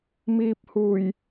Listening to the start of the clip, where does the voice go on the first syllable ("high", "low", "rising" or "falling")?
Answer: low